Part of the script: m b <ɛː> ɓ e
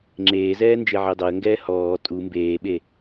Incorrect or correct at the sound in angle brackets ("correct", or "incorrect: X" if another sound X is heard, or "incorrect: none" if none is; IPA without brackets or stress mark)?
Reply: incorrect: eː